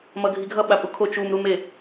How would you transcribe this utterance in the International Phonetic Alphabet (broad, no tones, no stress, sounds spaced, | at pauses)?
m ʌ ɡʱ i ɡʱ ʌ ɓ a pʼ u kʰ o t͡ʃ u m ɾ u m e